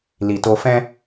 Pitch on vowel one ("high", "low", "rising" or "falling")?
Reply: low